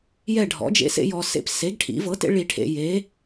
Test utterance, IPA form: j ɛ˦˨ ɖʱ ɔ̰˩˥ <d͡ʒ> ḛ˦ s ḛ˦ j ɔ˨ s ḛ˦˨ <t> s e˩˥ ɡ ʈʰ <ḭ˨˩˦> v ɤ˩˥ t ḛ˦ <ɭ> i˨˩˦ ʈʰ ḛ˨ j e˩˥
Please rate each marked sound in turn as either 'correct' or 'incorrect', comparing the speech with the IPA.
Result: correct, incorrect: p, correct, correct

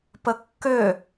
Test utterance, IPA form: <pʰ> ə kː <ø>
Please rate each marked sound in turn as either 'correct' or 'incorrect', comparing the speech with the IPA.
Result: incorrect: p, correct

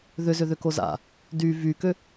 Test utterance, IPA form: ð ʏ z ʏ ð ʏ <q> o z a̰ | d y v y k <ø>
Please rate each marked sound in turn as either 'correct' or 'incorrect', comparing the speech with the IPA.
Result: incorrect: k, correct

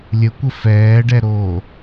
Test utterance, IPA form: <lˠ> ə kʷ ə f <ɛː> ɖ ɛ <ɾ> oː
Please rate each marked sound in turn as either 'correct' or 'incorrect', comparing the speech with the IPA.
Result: incorrect: lʲ, correct, correct

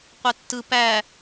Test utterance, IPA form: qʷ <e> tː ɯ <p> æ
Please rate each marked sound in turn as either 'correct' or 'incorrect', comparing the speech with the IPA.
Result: correct, correct

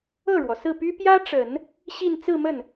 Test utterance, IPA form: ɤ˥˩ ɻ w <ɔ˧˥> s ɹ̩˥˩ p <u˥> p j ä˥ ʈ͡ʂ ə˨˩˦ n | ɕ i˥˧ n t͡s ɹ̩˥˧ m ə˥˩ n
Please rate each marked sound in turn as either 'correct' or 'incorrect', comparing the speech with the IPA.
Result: incorrect: ɔ˩, incorrect: y˥

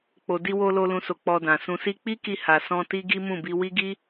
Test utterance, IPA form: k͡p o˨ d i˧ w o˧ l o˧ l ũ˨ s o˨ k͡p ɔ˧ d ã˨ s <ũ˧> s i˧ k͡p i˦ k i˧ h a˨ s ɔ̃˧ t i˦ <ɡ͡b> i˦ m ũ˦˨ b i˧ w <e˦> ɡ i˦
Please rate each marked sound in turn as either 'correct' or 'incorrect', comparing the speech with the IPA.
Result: correct, incorrect: ɡ, incorrect: i˦

